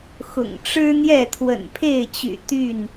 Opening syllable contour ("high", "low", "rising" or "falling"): low